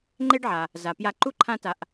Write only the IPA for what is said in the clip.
ŋ͡ǃe˥ɖʕa˩ | za˩pja˧ǃu˥ ǃʰã˥ta˧ʔ

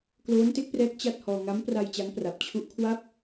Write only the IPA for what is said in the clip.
kloː˦˥nte˦˥k̚prɛː˦˥k̚ t͡ɕa˥˩t̚hɔː˧ ŋa˦˥mpra˧j t͡ɕa˦˥ŋpra˨˩p̚ t͡ɕʰu˦˥ʔkʰwa˥˩p̚

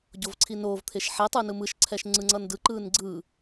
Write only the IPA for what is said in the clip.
ɟovǀʰinoːv t̪ʰeʃħe tˤɯnɯmɯʃ ǀʰɛʃŋ͡ǀɯŋ͡ǀʌndɯ ǃɯːnɡ͡ǀɯ

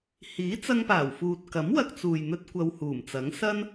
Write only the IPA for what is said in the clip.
hiː˨˥t͡sɐ˧ŋpaː˨˩wfuː˨t̚ kɐ˨˥mwɐ˧k̚t͡suː˨jn̪ɵ˧t̚ kʷɐ˧whuː˨˩mt͡sɐ˨˥ŋ sɐ˥n

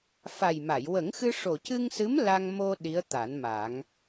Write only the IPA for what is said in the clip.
fa˨˩jma˨˩˨j wə˨˩˦ŋxɨ˧ ʂo˨˩cɨ˧ŋsɨ˧˥m la˧ŋ mo˧ ɗi˧˥ə̯t̪a˨˩˦nma˨˩˦ŋ

